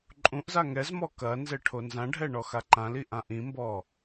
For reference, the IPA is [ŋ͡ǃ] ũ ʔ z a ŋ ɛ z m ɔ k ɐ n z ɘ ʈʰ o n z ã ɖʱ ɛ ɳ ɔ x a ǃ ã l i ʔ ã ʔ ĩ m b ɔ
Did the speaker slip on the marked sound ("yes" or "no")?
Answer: yes